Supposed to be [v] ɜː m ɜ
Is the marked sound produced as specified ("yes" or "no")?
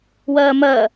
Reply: no